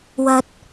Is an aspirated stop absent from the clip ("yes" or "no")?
yes